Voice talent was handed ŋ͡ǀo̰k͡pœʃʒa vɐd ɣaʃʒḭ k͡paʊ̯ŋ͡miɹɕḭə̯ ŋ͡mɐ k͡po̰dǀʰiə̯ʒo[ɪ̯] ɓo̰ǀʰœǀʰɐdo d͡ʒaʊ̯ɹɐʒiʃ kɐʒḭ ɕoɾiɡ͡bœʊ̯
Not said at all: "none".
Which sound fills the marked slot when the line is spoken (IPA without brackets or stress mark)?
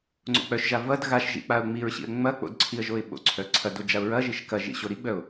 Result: ɪ̯